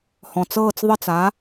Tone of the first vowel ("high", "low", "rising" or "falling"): low